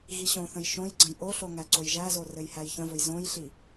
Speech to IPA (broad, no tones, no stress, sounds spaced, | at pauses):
ɣ i ɕ õ θ ə̃ j ʃ õ j ɡ͡ǀ ə̃ j ʔ o ɬ o ŋ æ ǀ o j ʒ æ z o r ɘ j h æ j ç ə̃ v ɵ j z õ j ɬ i